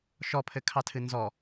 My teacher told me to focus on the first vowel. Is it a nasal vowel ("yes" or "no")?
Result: no